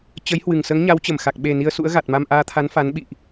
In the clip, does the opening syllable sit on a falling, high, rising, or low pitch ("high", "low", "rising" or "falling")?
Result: rising